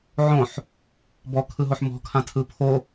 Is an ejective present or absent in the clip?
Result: absent